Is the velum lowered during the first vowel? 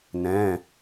yes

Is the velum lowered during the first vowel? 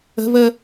no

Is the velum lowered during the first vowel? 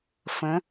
yes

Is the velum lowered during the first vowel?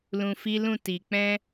yes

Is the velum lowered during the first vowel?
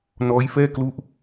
no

